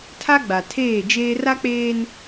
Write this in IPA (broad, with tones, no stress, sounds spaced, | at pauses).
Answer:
tʰ a˦ ɡ͡b a˨ tʰ eː˦˨ d͡ʒ eː˦ r a˦ k͡p eː˦ n